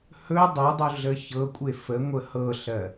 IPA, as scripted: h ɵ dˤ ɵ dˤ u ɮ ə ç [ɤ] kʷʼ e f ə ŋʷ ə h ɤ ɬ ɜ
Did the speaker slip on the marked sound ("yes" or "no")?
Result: no